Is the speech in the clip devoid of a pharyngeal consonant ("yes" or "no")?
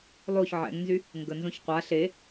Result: no